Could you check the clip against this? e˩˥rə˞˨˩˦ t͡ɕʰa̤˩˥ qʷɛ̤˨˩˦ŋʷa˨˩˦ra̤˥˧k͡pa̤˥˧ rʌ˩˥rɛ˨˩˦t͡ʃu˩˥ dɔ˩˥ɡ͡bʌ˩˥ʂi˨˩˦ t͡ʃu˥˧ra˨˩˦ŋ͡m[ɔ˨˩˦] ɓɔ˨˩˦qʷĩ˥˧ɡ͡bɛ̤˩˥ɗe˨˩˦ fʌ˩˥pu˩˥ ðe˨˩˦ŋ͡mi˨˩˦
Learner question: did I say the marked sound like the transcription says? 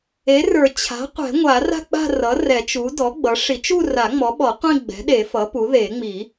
no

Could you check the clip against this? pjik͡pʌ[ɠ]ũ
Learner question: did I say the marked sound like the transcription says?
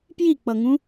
no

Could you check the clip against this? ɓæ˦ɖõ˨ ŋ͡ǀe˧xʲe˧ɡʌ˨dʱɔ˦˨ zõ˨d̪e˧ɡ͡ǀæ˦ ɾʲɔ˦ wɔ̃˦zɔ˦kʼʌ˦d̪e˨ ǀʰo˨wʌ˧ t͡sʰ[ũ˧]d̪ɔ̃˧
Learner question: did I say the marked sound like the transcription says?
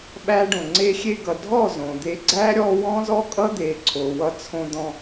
no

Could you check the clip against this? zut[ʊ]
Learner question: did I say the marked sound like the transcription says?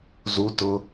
yes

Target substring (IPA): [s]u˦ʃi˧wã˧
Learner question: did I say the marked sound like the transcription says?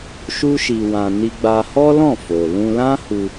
no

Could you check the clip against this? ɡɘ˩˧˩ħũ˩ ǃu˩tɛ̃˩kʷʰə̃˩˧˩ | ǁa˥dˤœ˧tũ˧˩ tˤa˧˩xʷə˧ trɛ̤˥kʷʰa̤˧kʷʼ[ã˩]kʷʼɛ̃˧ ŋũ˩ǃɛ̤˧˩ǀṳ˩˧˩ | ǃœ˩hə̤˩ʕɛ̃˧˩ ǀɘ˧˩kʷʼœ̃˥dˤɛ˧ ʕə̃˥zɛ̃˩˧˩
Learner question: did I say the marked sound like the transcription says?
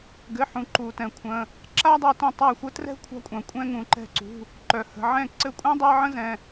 yes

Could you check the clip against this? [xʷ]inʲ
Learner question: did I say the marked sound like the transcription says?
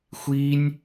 yes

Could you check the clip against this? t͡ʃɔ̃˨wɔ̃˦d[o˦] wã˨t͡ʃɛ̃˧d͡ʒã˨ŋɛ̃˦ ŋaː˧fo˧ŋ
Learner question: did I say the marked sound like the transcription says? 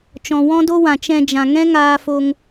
yes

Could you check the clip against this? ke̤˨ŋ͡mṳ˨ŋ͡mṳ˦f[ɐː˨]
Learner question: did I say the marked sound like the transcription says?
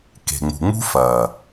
yes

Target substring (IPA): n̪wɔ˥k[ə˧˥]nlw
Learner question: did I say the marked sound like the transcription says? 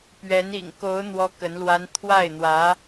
yes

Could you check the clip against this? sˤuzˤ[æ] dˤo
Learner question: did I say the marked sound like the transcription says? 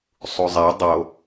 yes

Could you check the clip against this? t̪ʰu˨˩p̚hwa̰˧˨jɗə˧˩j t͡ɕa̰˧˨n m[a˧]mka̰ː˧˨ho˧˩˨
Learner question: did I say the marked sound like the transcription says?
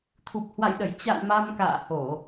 yes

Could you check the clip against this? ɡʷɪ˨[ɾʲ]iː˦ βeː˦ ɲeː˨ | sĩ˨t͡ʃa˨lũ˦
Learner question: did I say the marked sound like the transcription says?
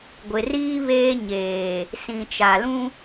no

